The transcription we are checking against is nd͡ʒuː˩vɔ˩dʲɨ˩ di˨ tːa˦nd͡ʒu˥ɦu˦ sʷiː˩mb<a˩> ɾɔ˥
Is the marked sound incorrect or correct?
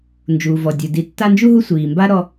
incorrect